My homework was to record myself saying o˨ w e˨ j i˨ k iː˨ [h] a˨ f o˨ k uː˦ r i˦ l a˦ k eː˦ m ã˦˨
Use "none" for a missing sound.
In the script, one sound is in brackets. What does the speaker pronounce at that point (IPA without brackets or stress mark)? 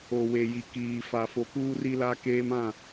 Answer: f